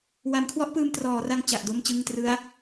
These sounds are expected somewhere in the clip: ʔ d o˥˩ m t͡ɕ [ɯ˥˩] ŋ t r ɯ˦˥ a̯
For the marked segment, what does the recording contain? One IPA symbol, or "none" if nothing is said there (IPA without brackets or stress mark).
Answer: ɯ˥˩